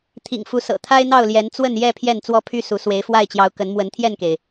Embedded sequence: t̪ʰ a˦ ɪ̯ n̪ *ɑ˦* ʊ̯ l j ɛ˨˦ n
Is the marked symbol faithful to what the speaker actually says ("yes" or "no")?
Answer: no